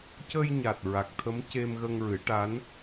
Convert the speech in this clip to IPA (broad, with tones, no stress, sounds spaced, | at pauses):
c ə˧ j ɲ a˨˩ t̚ ɹ a˨˩ k̚ t̪ʰ ə˧˥ m c e˧ m ɣ ə˧ ŋ ɹ ɨ˨˩˦ ʈ a˧˥ n